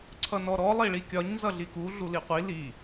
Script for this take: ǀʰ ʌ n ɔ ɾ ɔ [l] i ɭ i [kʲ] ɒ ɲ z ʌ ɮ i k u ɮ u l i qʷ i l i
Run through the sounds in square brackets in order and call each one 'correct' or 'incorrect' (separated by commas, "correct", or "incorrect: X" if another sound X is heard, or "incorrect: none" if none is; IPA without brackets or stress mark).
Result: incorrect: lˠ, correct